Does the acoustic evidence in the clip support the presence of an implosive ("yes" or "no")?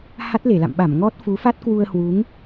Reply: yes